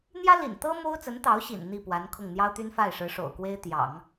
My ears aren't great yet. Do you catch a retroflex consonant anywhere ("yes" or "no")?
yes